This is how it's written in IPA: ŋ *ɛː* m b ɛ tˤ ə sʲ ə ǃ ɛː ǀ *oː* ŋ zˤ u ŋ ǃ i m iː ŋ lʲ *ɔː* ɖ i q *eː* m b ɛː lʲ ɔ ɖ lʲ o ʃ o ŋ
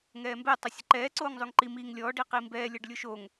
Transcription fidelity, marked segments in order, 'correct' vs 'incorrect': correct, correct, correct, incorrect: iː

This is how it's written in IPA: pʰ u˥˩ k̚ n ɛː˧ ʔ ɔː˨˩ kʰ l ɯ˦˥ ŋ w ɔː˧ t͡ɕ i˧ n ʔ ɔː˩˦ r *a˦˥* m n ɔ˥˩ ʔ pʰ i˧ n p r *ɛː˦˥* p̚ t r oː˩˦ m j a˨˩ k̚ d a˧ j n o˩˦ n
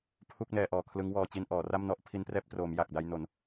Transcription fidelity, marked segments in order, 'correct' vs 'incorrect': incorrect: a˥˩, correct

